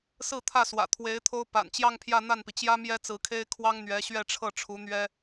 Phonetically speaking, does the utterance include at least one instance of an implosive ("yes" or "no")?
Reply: no